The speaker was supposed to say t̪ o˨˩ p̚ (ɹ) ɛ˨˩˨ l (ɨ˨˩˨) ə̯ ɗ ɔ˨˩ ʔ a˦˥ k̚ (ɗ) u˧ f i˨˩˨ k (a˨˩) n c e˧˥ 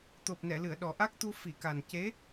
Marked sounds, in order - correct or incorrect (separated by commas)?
incorrect, correct, incorrect, correct